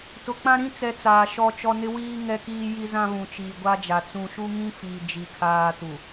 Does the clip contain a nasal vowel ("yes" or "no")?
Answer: yes